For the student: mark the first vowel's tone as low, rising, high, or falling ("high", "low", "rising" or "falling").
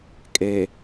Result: low